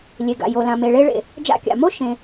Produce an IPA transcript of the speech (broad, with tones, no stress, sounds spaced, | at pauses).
lʲ e˩ ɡ a̰˩ j o˩ l ã˩ m e˩ ɭ e˧ ɭ ḛ˩ | d͡ʒ a̰˧ kʲ a̰˩ m o˥ ʃ ẽ˩